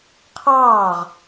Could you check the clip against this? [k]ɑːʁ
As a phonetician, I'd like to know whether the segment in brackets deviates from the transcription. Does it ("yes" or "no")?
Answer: yes